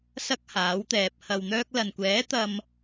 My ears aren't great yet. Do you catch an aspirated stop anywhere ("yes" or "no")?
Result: no